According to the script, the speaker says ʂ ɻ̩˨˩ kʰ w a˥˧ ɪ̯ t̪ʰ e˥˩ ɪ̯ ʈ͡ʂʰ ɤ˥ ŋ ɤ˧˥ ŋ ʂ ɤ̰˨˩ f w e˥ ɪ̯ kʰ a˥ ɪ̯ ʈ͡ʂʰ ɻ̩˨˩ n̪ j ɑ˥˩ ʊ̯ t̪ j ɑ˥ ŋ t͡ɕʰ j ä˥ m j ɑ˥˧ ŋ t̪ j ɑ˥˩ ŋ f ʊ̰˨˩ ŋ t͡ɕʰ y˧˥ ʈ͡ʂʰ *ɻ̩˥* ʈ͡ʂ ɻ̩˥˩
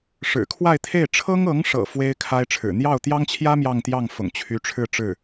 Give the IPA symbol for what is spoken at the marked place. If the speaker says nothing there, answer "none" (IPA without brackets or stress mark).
ɻ̩˥˧